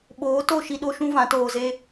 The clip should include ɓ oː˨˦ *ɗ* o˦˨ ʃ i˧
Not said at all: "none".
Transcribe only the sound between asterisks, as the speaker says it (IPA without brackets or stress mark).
t